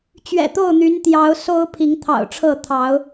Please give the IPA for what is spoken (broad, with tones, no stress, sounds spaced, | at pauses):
t͡ɕ ɥ ɛ̰˨˩ t̪ o˥˨ ʊ̯ n̪ y˨˦ n t̪ j ɑ˨˦ ʊ̯ s o˦ ʊ̯ pʰ i˨˦ ŋ t̪ʰ ɑ̰˨˩ ʊ̯ ʈ͡ʂʰ ɤ˥˨ t̪ʰ ɑ˨˦ ʊ̯